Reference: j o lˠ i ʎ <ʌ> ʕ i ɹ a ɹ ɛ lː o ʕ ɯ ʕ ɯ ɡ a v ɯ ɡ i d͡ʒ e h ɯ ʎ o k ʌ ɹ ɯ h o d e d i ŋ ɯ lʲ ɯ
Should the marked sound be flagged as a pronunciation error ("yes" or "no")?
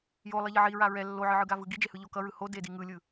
no